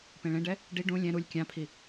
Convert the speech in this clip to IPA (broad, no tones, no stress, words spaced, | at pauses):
pẽɭẽɖɛ | ɖi ɖũ lʲɛ̃ ɾulʲ kʲãpʰi